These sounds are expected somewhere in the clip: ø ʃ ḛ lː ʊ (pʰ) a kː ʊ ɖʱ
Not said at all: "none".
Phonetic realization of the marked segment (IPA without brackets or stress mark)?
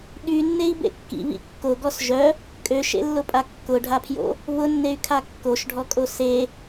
pʼ